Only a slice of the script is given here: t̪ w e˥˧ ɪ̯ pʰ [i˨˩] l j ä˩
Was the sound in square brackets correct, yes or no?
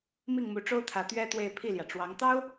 no